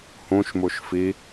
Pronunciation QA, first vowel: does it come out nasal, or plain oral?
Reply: nasal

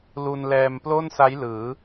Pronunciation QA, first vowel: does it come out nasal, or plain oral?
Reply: oral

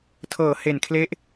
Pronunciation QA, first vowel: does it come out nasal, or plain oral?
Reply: oral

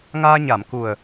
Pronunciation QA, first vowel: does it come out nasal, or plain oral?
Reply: oral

